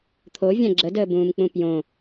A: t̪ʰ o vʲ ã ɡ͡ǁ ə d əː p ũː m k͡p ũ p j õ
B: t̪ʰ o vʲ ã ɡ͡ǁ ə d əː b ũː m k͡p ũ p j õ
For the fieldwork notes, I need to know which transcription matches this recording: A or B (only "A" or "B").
B